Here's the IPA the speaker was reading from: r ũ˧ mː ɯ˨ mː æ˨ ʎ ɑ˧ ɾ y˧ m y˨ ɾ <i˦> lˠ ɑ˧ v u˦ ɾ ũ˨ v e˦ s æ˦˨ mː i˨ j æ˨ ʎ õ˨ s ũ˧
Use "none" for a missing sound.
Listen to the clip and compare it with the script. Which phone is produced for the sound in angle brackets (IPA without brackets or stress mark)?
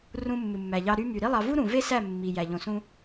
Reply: i˦